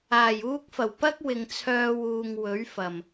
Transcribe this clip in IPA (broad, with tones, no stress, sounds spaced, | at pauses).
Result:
aː˨˩ j uː˧ k̚ f ɐ˨˩ w p ɐ˥ k̚ w ɪ˨ ŋ t͡sʰ œː˧ w uː˨ ŋ w ɵ˨˥ ɥ f ɐ˨˩ m